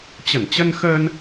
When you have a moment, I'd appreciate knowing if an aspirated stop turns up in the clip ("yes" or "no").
no